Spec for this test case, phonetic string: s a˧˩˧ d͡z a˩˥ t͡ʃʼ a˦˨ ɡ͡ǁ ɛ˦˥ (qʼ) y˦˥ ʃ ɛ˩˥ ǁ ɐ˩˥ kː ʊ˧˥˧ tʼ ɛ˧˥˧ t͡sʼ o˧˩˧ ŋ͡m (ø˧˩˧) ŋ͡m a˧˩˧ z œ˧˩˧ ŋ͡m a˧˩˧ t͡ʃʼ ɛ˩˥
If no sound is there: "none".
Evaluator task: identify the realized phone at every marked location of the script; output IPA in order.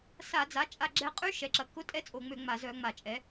qʼ, ø˧˩˧

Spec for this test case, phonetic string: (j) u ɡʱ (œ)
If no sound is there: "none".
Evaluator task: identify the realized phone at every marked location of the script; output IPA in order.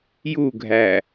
j, æ

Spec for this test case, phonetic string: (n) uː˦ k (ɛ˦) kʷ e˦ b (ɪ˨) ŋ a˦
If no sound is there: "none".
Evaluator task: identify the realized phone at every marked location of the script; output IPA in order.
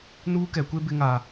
n, ɛ˨˦, ɪ˦

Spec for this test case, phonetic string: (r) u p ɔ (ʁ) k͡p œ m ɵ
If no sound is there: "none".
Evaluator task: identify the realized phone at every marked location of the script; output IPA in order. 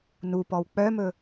n, w

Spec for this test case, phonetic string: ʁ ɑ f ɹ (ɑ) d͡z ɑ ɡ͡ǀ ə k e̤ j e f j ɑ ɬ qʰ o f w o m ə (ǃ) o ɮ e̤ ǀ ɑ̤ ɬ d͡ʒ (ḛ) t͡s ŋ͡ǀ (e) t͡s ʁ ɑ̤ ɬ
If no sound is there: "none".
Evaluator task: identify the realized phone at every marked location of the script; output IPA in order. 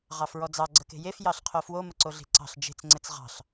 ɔ, ǀ, e̤, ɘ

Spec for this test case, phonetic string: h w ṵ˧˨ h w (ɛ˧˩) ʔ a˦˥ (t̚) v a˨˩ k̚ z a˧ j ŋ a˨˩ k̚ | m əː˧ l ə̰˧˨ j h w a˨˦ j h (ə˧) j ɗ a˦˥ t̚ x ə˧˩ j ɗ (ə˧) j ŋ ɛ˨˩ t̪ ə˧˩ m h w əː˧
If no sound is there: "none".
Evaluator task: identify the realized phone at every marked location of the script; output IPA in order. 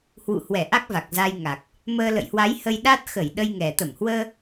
ɛ˧˩, k̚, ə˧, ə˧

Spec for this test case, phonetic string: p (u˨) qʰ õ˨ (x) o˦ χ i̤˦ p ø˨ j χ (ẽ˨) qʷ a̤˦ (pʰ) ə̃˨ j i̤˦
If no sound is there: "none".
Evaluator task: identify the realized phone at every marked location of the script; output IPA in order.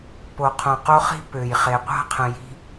o˨, q, e˨, qʰ

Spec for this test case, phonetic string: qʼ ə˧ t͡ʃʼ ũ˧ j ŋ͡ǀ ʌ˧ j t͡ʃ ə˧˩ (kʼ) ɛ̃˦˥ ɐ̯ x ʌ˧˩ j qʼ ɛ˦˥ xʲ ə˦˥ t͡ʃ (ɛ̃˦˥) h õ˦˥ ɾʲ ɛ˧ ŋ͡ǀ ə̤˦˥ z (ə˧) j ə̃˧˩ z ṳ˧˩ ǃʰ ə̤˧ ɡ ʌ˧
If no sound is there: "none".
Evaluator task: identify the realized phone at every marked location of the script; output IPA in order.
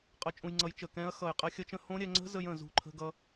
k, ə̃˦˥, ə˧

